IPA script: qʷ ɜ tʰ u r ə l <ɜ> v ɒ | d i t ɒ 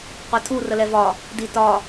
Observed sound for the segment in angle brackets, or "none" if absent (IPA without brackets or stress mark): ɛ